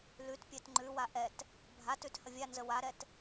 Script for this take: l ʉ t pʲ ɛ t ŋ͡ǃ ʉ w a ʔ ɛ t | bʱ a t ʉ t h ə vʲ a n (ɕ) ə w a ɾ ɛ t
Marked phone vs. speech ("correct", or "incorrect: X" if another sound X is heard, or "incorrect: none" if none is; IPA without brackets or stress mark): incorrect: z